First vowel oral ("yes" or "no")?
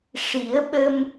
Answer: yes